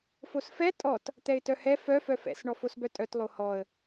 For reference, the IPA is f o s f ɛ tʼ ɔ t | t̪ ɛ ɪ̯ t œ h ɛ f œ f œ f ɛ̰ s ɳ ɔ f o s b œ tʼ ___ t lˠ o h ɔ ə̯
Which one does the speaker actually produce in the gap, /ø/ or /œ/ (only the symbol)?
œ